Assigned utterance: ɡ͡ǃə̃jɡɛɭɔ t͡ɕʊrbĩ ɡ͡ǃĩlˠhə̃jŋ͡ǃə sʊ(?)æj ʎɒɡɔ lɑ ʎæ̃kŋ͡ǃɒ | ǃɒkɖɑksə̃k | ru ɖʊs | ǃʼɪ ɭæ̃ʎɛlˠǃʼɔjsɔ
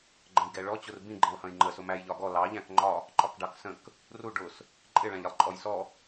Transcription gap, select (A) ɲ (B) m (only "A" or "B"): B